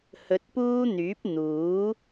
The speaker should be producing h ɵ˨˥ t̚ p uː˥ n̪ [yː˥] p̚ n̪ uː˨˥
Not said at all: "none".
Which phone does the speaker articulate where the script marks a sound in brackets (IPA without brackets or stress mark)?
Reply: yː˨˥